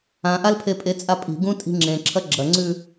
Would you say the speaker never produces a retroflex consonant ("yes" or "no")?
yes